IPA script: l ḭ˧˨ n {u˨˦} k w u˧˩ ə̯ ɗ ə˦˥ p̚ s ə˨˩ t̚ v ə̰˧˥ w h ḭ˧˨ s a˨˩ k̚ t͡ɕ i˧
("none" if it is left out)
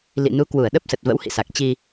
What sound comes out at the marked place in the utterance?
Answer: u˨˦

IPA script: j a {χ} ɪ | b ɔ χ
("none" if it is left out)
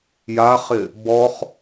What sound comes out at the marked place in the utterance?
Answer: χ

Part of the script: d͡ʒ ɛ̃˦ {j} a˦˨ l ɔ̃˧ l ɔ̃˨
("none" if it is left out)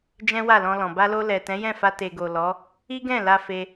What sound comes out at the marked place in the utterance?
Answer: w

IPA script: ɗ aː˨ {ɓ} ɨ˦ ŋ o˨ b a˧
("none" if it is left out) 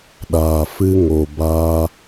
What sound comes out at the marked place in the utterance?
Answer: f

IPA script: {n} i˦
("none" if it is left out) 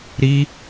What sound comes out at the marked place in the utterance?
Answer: ɾ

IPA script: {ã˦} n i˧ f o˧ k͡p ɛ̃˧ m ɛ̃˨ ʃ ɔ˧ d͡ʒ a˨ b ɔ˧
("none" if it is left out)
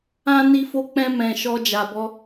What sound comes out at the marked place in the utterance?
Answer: ã˦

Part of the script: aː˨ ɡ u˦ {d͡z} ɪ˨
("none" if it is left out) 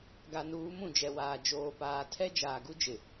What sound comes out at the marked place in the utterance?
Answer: d͡ʒ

